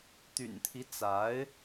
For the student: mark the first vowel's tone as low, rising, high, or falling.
low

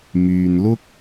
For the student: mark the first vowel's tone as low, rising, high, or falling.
low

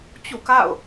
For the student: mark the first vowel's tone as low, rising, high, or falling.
falling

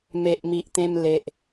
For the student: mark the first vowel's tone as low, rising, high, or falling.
low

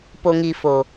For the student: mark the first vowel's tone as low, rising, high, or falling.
low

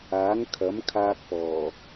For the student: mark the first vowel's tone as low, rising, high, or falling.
rising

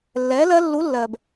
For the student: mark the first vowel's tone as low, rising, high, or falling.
rising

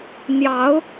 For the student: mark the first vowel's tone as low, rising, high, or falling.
rising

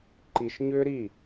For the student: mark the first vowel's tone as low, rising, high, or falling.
low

